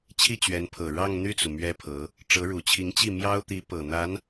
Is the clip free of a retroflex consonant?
no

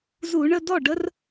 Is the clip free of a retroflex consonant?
no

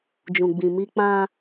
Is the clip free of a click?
yes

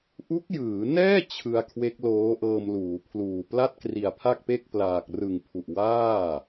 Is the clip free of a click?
yes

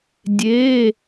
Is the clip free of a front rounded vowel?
yes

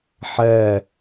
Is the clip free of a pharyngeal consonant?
no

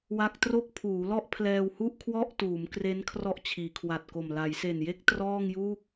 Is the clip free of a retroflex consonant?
yes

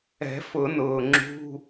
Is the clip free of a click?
no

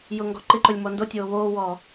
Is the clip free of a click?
no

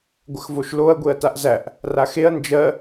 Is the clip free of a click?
yes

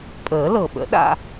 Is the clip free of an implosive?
no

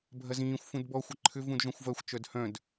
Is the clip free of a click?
no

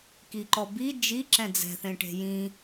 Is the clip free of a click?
no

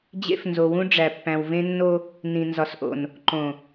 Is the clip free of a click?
no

